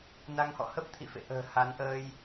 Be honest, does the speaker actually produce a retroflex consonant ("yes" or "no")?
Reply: no